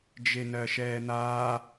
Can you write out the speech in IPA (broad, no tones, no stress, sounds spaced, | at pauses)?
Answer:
d͡ʒ e n ɜ ʃ ɛː n̪ aː